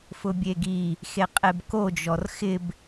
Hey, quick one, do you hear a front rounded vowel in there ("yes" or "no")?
no